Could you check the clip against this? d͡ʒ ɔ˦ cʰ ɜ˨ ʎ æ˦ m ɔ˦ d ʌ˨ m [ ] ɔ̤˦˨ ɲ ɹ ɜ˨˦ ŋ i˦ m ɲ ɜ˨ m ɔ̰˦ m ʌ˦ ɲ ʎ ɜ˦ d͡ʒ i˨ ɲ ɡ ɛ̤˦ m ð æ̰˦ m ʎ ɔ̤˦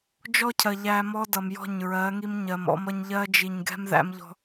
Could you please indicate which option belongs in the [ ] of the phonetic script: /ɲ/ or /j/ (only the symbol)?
j